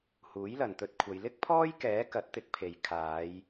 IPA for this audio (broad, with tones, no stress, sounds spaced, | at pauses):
h uː˨˥ j l ɐ˨ n t̪ ɵ˧ t̚ kʷʰ ɐ˨˧ j l ɪ˥ k̚ pʰ ɔː˥ j k ɛː˨˥ k ɐ˨˥ t̚ t̪ ɪ˧ k̚ pʰ e˨ j kʰ aː˨˧ j